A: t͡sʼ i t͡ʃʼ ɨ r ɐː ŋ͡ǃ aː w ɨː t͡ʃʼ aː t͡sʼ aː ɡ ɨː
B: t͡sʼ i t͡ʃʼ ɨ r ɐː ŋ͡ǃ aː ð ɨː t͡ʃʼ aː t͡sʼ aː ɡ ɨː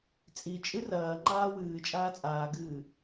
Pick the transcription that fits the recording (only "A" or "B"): A